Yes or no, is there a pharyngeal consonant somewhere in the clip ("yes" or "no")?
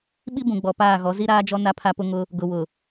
no